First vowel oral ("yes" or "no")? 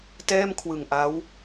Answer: yes